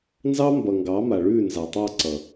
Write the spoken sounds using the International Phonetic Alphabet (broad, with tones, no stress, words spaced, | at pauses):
nzɑ˦ mbʌ˨ŋɡɑ˨˦ma˨ ɭʉː˦˨nza˨tˤɑ˦˨ ǀʌ˨